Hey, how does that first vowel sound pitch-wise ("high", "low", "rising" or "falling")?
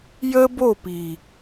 high